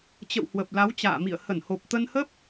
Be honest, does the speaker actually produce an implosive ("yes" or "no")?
no